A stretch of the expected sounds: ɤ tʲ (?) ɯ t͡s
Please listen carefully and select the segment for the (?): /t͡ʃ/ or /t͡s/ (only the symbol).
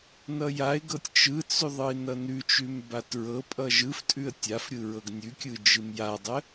t͡ʃ